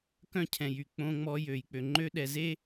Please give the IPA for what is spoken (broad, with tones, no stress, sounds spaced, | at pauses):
k œ̃˦˨ cʰ ɛ̃˨ j y˨ k͡p õ˦ ŋ͡m ɔ˦ j ø˨ j k͡p ø˨ ŋ͡ǃ ø˦ ɗ ɛ˨ z e˦